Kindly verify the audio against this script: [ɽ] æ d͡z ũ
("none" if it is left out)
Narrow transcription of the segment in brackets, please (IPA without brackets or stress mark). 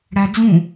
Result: ɽ